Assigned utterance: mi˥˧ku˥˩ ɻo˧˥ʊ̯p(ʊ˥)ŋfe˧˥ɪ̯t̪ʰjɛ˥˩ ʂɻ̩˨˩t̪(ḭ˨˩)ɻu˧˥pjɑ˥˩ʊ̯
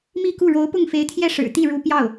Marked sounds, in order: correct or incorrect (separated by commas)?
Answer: incorrect, incorrect